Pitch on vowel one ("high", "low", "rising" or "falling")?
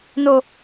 high